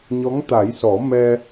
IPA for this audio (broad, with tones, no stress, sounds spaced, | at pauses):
ɲ ɔ˧˥ ŋ t̪ a˨˩˦ j s ɔ˨˩˦ m ɛ˧